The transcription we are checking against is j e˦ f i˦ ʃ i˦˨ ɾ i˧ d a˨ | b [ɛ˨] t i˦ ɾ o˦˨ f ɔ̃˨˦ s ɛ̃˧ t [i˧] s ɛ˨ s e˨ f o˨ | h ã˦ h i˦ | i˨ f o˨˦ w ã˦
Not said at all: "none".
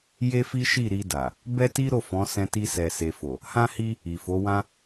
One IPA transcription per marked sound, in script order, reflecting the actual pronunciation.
ɛ˦, i˧

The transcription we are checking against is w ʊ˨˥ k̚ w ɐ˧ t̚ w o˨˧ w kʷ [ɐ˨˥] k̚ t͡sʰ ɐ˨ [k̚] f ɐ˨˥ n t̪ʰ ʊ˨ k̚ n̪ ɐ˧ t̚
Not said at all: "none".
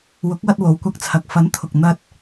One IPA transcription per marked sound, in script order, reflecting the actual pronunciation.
ɐ˧, k̚

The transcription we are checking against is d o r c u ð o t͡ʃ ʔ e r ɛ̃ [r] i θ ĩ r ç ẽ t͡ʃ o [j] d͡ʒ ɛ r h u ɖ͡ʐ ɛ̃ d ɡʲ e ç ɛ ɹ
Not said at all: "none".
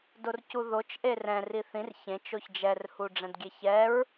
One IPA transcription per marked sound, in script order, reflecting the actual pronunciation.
r, ç

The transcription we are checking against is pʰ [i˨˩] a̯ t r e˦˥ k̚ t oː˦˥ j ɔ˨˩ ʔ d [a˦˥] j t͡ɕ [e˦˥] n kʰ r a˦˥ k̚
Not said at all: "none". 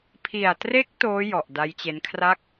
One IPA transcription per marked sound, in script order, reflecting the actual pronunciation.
i˨˩, a˦˥, e˦˥

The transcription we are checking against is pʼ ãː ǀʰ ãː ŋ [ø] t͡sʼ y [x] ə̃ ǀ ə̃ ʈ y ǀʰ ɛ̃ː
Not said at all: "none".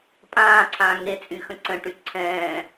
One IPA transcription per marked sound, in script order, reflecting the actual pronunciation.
e, x

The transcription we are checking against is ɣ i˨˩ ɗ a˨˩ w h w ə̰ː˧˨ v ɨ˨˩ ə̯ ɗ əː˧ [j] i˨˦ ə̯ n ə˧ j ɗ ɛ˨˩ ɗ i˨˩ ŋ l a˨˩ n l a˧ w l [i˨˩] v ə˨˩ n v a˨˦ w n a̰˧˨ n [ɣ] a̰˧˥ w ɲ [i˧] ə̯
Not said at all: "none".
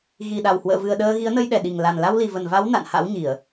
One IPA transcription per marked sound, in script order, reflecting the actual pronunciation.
ɣ, i˨˩, h, i˧˩˨

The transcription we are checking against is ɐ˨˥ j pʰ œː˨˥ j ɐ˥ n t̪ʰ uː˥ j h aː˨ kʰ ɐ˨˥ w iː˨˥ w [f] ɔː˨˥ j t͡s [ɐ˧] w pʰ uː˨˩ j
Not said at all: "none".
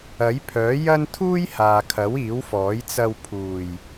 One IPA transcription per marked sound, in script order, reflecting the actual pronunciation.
f, ɐ˧

